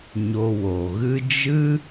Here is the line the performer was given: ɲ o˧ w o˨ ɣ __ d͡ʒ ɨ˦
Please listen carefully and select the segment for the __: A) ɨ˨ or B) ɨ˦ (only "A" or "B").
B